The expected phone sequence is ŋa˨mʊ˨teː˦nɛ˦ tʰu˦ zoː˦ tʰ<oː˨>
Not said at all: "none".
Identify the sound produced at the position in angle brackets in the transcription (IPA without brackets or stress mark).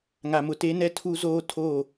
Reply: oː˦˨